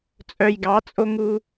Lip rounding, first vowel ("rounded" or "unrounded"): rounded